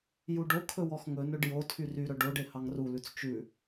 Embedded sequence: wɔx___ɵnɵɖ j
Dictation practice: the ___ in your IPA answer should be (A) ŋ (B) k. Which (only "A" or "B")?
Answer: A